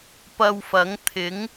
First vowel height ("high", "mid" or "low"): low